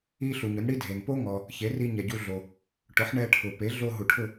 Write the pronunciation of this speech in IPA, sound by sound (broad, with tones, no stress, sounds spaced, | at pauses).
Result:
i˥ ɬ u˩ ɲ ʊ˩˥ n ɽ i˥ dʱ e˩ n p o˥ ŋ ɔ˩ | ç e˩˥ r i˧ ɲ ɛ˩ ɟ u˧ ɮ o˩ | ʈ ʊ˩˥ ħ ɳ ɛ˧ ʈʰ ʊ˩ p e˩˥ ɮ o˧ ɦ u˩ ʈʰ ʊ˥˩